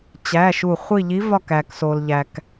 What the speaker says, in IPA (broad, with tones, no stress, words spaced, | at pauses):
t͡ɕæ˧˥˧ʃu˦˨ χʷi˦˨ʎi˧˥vɒ˦˨k æ˨kso˨lʎæ˨k